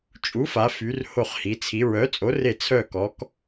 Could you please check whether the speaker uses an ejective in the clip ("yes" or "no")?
yes